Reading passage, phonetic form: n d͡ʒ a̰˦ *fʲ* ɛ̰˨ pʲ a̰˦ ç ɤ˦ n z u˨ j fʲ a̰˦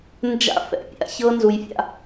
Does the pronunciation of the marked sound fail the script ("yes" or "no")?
yes